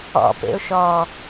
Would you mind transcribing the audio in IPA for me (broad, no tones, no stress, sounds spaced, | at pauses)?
ɔ̰ p ḛ ʊ̯ ʃ ɔ